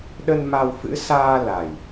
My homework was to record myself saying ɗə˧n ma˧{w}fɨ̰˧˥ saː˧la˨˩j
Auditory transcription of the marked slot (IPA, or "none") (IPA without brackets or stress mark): w